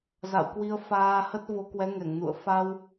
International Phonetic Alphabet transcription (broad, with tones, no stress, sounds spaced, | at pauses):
z a̰˧˨ w k w i˧ ə̯ f aː˧ h ə˦˥ t̚ v o˨˦ k w ɛ˨˦ ŋ ɛ˧˩ ŋ n ṵ˧˨ ə̯ f a˧ w